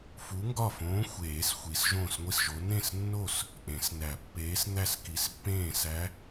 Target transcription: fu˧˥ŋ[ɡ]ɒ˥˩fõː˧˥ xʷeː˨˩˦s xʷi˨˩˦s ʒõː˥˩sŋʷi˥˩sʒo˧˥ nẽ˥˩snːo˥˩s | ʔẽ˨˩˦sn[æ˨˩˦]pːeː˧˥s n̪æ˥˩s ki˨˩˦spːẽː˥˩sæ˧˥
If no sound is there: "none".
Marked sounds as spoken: ɡ, æ˨˩˦

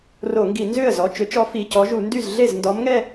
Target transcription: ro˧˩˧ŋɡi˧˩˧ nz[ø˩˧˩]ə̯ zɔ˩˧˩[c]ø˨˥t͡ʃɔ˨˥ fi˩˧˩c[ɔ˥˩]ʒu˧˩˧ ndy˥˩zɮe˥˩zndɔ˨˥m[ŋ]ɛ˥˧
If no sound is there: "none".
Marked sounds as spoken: ø˥˩, t͡ʃ, ɔ˨˥, ŋ

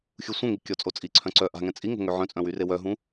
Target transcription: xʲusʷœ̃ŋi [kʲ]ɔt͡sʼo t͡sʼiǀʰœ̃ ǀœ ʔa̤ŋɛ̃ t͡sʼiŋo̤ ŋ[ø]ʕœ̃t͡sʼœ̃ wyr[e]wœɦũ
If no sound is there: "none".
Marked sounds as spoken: kʲ, ø, e

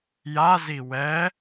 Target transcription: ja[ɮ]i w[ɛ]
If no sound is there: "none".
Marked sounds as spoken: z, ɛ

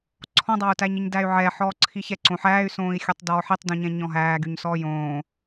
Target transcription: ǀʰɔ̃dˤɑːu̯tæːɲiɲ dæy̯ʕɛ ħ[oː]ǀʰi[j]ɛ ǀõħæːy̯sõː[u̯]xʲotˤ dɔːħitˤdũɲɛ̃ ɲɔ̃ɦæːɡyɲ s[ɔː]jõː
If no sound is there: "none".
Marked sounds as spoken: ɔː, ç, i̯, ɔː

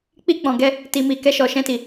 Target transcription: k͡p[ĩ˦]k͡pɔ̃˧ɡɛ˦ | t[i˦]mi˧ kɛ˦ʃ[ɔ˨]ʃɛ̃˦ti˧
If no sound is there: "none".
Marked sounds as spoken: i˦, i˧, ɔ˧

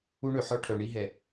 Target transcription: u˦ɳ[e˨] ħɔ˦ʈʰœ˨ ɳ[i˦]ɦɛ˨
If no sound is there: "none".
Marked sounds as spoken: ø˨, i˦

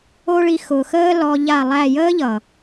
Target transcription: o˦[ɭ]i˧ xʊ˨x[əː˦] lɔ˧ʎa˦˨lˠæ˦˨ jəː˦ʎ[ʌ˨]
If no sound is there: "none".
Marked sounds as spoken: ɭ, əː˦, ʌ˨

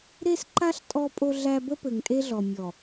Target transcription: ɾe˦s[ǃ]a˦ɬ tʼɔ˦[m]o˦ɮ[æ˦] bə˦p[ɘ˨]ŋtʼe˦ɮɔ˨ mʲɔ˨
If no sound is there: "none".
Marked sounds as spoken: ǃ, pʼ, æ˦, ɘ˨

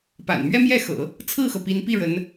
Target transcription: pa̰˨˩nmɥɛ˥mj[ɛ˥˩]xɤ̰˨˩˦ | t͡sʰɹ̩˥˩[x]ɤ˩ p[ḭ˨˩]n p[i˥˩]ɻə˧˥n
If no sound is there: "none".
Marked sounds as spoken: ɛ˥˩, x, i˧˥, i˥˩

